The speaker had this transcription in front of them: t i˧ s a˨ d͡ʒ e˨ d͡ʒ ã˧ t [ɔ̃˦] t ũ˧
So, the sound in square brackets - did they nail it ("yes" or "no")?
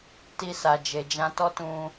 no